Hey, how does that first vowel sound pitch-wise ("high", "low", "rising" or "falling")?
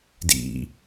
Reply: low